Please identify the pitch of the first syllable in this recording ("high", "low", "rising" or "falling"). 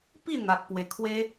falling